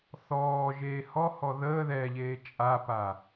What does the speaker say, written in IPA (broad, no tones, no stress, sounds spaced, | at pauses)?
θ ɔː ʒ eː h ɔ h ɔ ð əː ð ɛ ʎ eː t͡ʃʼ a p a